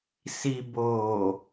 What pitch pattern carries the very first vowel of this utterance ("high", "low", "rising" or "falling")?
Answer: low